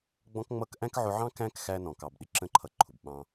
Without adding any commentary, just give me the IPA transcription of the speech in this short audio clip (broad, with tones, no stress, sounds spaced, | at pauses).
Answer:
ɡ͡b ɔ̃˦ k ŋ͡m ʌ˦ k ʔ æ̃˦ k ʕ ʊ˧ ʕ ɑ̃˦ k æ̃˦ k x æ˧ n ɔ̃˨ k ɑ˨ b ɗ ɪ˧ ǁ ə̃˦ ǃʰ ʌ˧ ǃʰ ʊ˨ b ɓ ɑ̃˧